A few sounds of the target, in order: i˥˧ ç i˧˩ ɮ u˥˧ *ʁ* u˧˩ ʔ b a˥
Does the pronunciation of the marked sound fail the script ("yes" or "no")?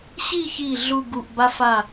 yes